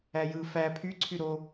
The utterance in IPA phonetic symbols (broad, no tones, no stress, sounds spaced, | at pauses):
æ j ɯ f æ pʰ y ǀʰ y ɾ o